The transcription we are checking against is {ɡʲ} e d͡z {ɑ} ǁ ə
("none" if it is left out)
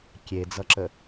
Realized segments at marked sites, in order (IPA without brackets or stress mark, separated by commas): kʲ, ʌ